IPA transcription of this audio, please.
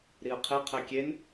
ɾ i ə̯ qʰ e qʰ æ kʲ e n

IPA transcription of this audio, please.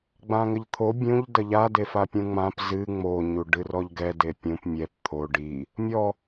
ɡ͡b ã ŋ ɘ ʎ t̪ʰ o bʲ ũ ʎ d ɐ ʎ a d e f a pʲ ũ ŋ͡m ã p z ɨ ŋ͡m o ɲ u ɖ ɨ r ɔ ʎ ɡ ɛ d e pʲ ũ p mʲ ɛ p t̪ʰ o ɖ i | mʲ ɔ

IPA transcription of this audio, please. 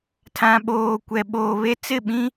tʰ ã˨ ɓ oː˨ kʷ ɛ˨ ɓ oː˨ β e˦ t͡s ɪ˦˨ ɓ ĩ˦

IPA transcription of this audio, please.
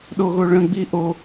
ɗ o ɣ o ɭ ə̃ ɡ͡b i ʔ o

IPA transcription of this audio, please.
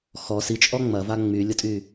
x ɔ s i t͡ʃʼ ɔ ŋ͡m ɐ v a ŋ͡m y lʲ ʊ tʼ y

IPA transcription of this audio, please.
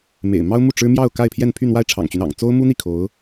m ḛ˨˩ ɪ̯ m ɑ˥ ʊ̯ m u˥˩ ʈ͡ʂ ɻ̩˥ m j ɑ˥˧ ʊ̯ k a˥˧ ɪ̯ pʰ j ɛ˥˧ n pʰ y˥˧ n̪ w a˥˩ ɪ̯ ʈ͡ʂʰ ɑ̰˨˩ ŋ t͡ɕ y˦ n ɑ̰˨˩ ŋ t͡s o˥ ʊ̯ m u˥ n̪ i˥˩ kʰ o˧˥ ʊ̯

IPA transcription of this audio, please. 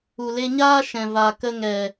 u˨ l e˧ ɲ aː˦ ʃ ɛ̃˨ v a˨ k ə˧ ŋ ɛ˨

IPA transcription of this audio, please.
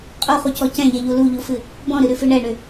qʼ u χ u c ɔ c ɛ̃ ʎ ɛ ʎ u l u ʎ u f ɨ | b ɔ̃ ɾ ɨ ɾ ʉ f ɨ ɳ ɛ ɳ ʏ

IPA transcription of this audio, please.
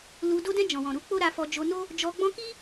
l u˧ d o˧ d ɛ̃˧ d͡ʒ ɔ̃˨ w ɔ̃˨ ɾ u˨˦ k͡p o˦ ɾ a˧ f ɔ˧ d͡ʒ o˧ n o˦ | d͡ʒ ɔ˧ ɡ͡b ɔ̃˦ k i˦

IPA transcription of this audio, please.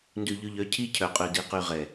n d ʉ˨ ʎ ʉ˨ ʎ œ˨˦ cʰ i˦ cʰ œ˨ qʼ ʉ˨ d i˨ q y˨ ʁ ɛ˨

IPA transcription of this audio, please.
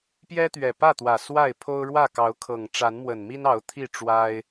p j ɛ˦ t̪ ɥ ɛ˨˩ p ä˥˨ t̪ w ä˨˩ s w a˥˨ ɪ̯ pʰ o˦ ʊ̯ ɻ w ä˥˨ k ɑ˨˦ ʊ̯ kʰ ɤ˨˩ ŋ ʈ͡ʂ a˨˦ n m w ə˨˩ n m i˦ n ɑ˨˦ ʊ̯ t̪ʰ i˥˨ ʈ͡ʂ w a˦ ɪ̯

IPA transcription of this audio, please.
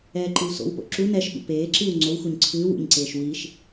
ɛː ǃ ɨ w s o̰ w p o̰ ǁ u n ɛ ʃ ɓ ṵ p eː ǁ ɨː w ŋ͡ǀ o w x u ɲ ǀʰ ɨː w ṵ ɲ ǀ eː ʃ w i ʃ

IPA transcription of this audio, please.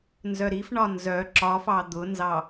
n z œ ɾ i f ɳ ɒ n z œ ǁ ɒ f ɑ d̪ ʊ n z ɑ

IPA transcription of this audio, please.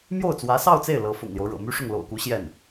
m j o˥˩ ʊ̯ t͡s w ä˧˥ s ɑ˥˧ ʊ̯ t͡s e˥˩ ɪ̯ l ɤ˧˥ f ʊ̰˨˩ ŋ l j o˦ ʊ̯ ɻ ɤ̰˨˩ m y˥ ʂ ʊ˥˩ ŋ l o̰˨˩ ʊ̯ k u˧˥ ɕ j ɛ˥˩ n

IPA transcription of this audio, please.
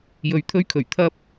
j ɵ˨ ɥ t̪ʰ ɵ˥ ɥ kʰ ɵ˨˩ ɥ t̪ʰ ɐ˥ p̚

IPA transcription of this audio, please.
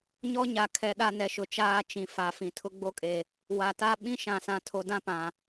ɲ ɔ˦ ɲ a˨ kʰ ɛ˨ ɗ a˦ n ɛ˨ ʃ ʊ˨ t͡ʃ aː˦ t͡ʃ ĩ˨ f a˨˦ f ĩ˨ tʰ ʊ˦ ɡ͡b o˦ kʼ e˨ | w a˨ t a˦ ɓ ĩ˦ ʃ ã˨ s ã˨ tʰ o˨ d ã˦ p ã˨

